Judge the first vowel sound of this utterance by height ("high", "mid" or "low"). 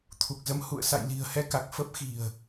high